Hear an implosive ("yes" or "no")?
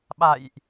yes